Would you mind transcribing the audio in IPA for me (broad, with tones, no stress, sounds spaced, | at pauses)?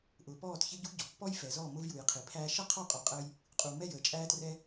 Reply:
ʔ ʊː˨ p ɔː˦˨ t ç ɪ˦ ɟ ṳ˦ ɟ ɔ̤˨ pː ɔ˦ j f ɛ˨ z ɔː˦˨ m ʊ˦ v j u˨ j qʰ i˨ pʰ æː˦ ʃ ʌ˦ qʰ ɔ˦˨ qʼ ɔ˨ qʼ əː˧ j | qʼ u˨ m ɛ˦˨ j əː˨ t͡ʃʼ æː˧ t r ɛ˧